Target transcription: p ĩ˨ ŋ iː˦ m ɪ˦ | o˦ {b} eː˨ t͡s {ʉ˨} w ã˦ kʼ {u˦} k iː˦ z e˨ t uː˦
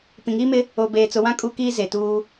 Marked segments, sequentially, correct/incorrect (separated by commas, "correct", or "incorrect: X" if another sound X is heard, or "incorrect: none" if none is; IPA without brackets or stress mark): correct, incorrect: ʊ˨, correct